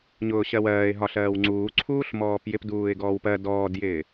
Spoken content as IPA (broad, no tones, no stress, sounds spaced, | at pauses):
ɲ ʊː ɕ ɜ w ɜː ɪ̯ ɦ ɒ ɬ ɜː w ŋ͡ǀ uː ǀʰ uː ɬ m ɔː p j ɪ p d uː ɪ̯ ɡ ɔː w p ɜ d ɔː d j ɪː